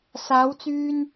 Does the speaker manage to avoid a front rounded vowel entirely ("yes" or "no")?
no